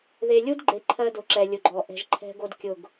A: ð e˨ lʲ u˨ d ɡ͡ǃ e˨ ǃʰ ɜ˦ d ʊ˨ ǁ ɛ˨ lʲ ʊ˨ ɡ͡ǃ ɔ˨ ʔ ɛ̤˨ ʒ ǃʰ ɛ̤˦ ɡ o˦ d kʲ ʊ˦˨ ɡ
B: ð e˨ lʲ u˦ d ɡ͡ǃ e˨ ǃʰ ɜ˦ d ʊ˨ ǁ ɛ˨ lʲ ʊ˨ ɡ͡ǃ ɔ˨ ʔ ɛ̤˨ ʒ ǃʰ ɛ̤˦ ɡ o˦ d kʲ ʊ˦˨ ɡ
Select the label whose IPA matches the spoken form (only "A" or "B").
B